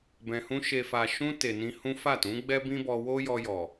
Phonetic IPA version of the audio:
b ɛ̃˨ h ũ˧ ʃ e˨ f a˨ ʃ ũ˧ t e˨ n ĩ˧ h ũ˦ f a˦˨ t ũ˨˦ ɡ͡b ɛ˦ b ĩ˦ b ɔ˧ w o˦ j ɔ˧ j ɔ˨

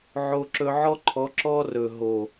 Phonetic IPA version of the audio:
ʕ o˧ ǁ ɵ˧ ʕ ɔ˦ ǃʰ ɔ˨˦ ǁ ɔ˦ r ɵ˨ ɦ o˨

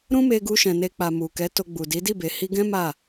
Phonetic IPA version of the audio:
ɾ ũ˦ m e˧ ɡ u˧ ʃ ɛ̃˨ n e˧ k͡p a˨ m u˨ k ɛ˨˦ t o˧ ɡ͡b u˨ d i˨˦ d i˦˨ b e˨ h i˧ ɡ ɛ̃˦ m a˦˨

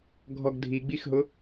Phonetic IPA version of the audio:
ɡʱ ɔ ɡ dʱ i ɡ͡b i x ɦ ʊ

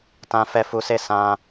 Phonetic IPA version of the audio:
t ã˧ f ɛ˧ f u˧ s e˦ s ã˦

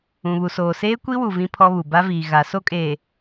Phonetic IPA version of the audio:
ũ˨ β u˨ s oː˨ s eː˦ kʷ i˦ w u˨ v ĩ˦ pʰ ɔ˦ β u˨ b a˦ v iː˨ ɣ a˨˦ s o˦ kʼ eː˨

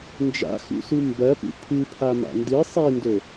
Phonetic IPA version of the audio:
n d͡ʒ a̰ x ṵ s u m b ɐ p ṵ pʰ ɨ pʰ a m a̰ n d ɨ sˤ i n d ɵ

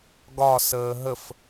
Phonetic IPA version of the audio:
ɡ ɒ s əː ɦ ə f

